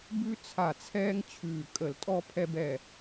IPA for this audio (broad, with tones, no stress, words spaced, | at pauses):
bʉ˦t͡sʰa˧˩t͡sʰɛː˦ŋ t͡ɕʰʉː˧˩ kʼə˧˩˧ltʼɔ˦ pʰɛ˦bɛ˧˩